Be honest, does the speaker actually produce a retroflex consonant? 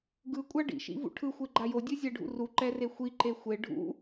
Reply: yes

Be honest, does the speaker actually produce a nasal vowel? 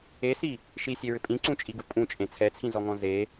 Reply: yes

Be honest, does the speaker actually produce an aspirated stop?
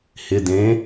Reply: no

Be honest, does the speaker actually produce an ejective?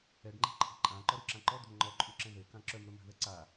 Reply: yes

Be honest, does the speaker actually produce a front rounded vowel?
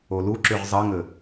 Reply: yes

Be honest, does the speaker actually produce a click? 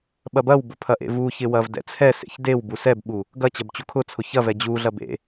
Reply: no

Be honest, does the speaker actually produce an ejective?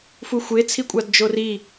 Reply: yes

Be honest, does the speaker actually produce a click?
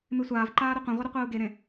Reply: yes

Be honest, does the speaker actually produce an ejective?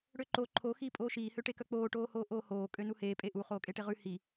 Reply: yes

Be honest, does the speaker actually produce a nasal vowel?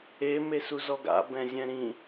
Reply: yes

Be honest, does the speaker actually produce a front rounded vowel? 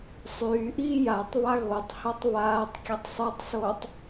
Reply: yes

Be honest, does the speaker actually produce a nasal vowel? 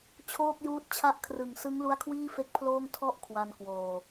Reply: no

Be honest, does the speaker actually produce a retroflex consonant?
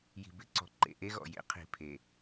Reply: no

